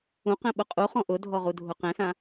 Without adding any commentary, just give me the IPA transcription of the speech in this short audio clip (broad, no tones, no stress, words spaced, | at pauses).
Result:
ũqɛ̃ɓʊ qʼuχɔ̃ ʔʊdʱɔʁudʱʊ qɛ̃sã